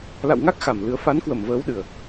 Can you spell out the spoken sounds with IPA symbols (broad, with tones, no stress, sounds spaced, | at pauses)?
l a̰˧˨ w ŋ a˦˥ k̚ x a˨˩ m l ɨ˧ ə̯ f a˨˦ n k w ə˧˩ m v əː˨˦ w ɗ ɨ˨˩ ə̯